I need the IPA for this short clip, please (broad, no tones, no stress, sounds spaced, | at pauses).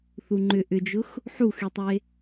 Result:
θ u ŋ͡ǃ ʏ ʔ ʏ d͡ʒ ʊ x | ħ u x y tˤ e